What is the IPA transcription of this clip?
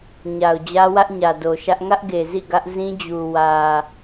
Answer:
ɲ a˨ ʊ̯ d͡ʑ ä˦ w ä˦ ʔ ɲ ä˨ d o˨ ʃ ä˦ ʔ ŋ ä˦ ʔ ɡ e˨ z ḭ˦˨ ɡ ä˦ ʔ z ĩ˦ d͡ʑ u˨ w ä˨

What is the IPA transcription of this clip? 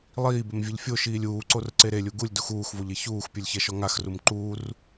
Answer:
lˠ iː b ɪ m vʲ ɛ ʎ fʲ o ʃ iː lʲ uː ǀ o r ǀ e ɾ e lʲ u ɡ u lʲ d u x uː x v o ʎ e ç uː x pʲ u lʲ ç ɛ ʃ ɔ ŋ a x r u m ǃ uː r

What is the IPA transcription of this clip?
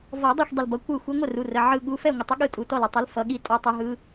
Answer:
v ɔ˨˩˦ dˤ a˥˩ xʷ dˤ ə˧˩ l b ʌ˩˧˩ kʷ ɯ˥˩ xʷ ɨ˧˥ ŋʷ ə˥˩ r u˩˧˩ r ə˩˧˩ ʕ ɯ˧˩ ɠ u˩˧˩ f ɛ˥˩ ŋʷ ə˨˩˦ tˤ ə˧˥ ɠ ɯ˥˩ tʼ u˩˧˩ t ɔ˥˩ l ɯ˧˩ tˤ ɨ˧˥ l f ʌ˩˧˩ ɠ i˥˩ tʼ ɔ˧˥ tˤ ɨ˧˥ ɦ ɯ˧˥

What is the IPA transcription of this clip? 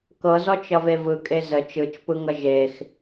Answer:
k ɤ z ɔ t͡ʃ ʌ v e v ɯ kʼ e z ə t͡ʃ ɯ t͡ʃ p ɯ ŋ ʌ ʒ e x

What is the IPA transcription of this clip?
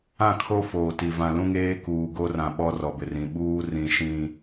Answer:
ã˦˨ kʰ o˦ f oː˨ t i˨ v ã˨ l ũ˦ ŋ eː˦ k uː˨ ɡ o˦ r ã˨ ɓ ɔ˦ r ɔ˨ b ɪ˨ r ĩ˨ ɓ uː˦ r ĩ˨ ʃ ĩ˨

